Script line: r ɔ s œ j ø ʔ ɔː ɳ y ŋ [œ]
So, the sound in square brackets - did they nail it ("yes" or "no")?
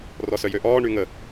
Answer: no